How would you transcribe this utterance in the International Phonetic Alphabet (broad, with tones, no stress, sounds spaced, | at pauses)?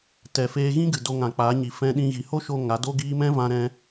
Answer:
t ɛ˨ f eː˧ ɣ ĩ˦ ɡ ɨ˨ d o˧ ŋ ã˨ k͡p aː˨˦ ɲ i˨ f ɛ̃˧ ɗ ĩ˧ ɣ i˨ h o˦ ʃ o˧ ŋ a˨˦ d o˦ ɡ iː˦ m ɛ̃˦ v ã˧ ɾ ɛ̃˧